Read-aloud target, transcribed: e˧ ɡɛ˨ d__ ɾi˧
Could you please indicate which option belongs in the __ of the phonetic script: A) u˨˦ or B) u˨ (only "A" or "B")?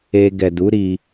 A